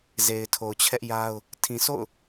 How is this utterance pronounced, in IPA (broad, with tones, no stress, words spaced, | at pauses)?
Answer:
ze˨ɪ̯tʰo˨ʊ̯t͡ɕʰɛ˦ʔja˦ʊ̯ | tʰĩ˨sʰo̰˦˨ʊ̯